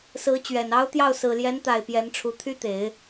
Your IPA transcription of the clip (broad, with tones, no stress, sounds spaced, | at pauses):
s ɹ̩˧˥ t͡ɕ ɥ ɛ˨˩ n ɑ˥ ʊ̯ t̪ j ɑ˥˩ ʊ̯ s ɹ̩˨˩ l j ɛ˧˥ n t̪ a˨˩ ɪ̯ p j ɛ˧˥ n ʈ͡ʂʰ u˧˥ t̪ʰ y˥ t̪ e˨˩˦ ɪ̯